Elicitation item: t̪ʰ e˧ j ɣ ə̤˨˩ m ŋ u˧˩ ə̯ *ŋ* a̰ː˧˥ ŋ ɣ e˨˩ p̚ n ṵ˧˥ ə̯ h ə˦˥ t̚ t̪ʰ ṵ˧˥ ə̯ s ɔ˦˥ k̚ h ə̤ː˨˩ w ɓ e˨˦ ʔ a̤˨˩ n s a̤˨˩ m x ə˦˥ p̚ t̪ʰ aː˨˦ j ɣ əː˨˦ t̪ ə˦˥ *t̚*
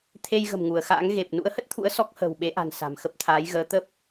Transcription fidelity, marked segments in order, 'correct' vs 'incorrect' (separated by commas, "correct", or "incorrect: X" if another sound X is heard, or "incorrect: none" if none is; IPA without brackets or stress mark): incorrect: x, incorrect: p̚